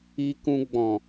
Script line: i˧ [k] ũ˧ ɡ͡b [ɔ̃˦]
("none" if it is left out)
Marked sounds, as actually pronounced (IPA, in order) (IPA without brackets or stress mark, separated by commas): k, ɔ̃˨